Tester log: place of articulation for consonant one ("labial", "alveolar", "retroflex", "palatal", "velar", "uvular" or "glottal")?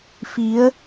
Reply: labial